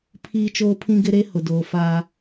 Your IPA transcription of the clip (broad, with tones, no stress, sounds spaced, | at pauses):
pʰ iː˦ t͡ʃ oː˦ pʰ ĩ˦ ɡ ɪ˦ ɾ e˦ h ʊ˨ d oː˨ f aː˦